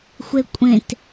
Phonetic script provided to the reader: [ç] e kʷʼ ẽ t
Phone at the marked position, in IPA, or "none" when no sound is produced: xʷ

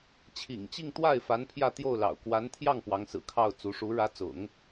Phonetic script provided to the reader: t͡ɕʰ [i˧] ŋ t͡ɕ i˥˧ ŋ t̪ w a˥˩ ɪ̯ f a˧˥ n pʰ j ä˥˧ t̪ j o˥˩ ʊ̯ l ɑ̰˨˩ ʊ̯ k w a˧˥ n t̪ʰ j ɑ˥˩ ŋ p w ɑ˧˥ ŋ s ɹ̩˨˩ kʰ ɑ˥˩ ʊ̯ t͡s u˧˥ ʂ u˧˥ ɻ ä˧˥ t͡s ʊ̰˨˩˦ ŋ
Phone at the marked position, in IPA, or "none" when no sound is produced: ḭ˨˩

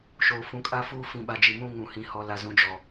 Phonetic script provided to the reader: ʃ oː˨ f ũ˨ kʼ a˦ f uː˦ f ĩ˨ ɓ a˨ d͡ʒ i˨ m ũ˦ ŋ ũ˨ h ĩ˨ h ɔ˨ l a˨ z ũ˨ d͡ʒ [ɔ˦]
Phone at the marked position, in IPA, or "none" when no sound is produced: ɔ˨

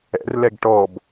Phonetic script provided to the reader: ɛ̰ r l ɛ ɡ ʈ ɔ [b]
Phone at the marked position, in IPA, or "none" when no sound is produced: b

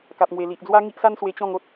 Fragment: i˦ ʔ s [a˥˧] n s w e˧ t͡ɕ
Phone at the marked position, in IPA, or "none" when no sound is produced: a˦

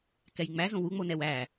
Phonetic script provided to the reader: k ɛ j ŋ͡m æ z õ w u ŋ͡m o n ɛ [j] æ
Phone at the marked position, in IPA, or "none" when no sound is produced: w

